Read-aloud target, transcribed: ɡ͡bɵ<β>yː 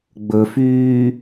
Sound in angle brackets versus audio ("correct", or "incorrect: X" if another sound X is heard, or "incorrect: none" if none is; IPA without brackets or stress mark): incorrect: f